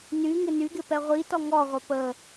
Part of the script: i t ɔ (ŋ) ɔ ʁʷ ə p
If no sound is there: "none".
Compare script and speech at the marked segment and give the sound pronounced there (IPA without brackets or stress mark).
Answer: ŋ